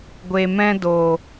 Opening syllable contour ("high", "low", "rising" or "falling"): low